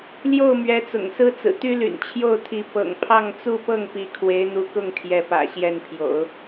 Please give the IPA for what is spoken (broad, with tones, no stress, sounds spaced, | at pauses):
l j o˥˩ ʊ̯ m ɥ ɛ˧˥ t͡s ʊ̰˨˩ ŋ s ɹ̩˥ t͡s ɹ̩˨˩ t̪ y˥ l y̰˨˩ n t͡ɕʰ j o˥˩ ʊ̯ t̪ʰ i˧˥ p ɤ̰˨˩ ŋ pʰ ɑ˥˧ ŋ t͡s u˥˧ p ɤ˥˩ ŋ p i˧˥ kʰ w e˧˥ ɪ̯ n̪ u˧˥ k ʊ˥˩ ŋ t̪ʰ j ɛ˧˥ p ä̰˨˩ ɕ j ɛ˥˩ n pʰ j o̰˨˩˦ ʊ̯